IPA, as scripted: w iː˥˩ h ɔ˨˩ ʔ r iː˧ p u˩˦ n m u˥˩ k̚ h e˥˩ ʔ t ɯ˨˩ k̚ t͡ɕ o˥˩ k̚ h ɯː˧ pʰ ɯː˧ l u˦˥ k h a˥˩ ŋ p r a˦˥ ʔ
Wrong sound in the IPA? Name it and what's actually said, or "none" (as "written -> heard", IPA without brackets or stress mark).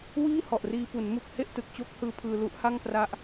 k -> ʔ